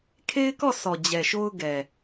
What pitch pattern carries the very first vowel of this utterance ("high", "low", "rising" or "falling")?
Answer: high